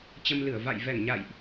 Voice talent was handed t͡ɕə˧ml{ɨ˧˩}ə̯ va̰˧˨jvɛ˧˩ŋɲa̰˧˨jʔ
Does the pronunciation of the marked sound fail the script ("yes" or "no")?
no